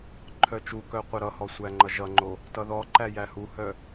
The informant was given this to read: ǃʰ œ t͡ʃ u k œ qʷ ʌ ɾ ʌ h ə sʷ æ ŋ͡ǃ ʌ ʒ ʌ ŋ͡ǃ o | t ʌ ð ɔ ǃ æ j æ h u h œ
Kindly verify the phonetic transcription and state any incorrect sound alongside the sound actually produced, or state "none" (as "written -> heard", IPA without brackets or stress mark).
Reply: ə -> ɔ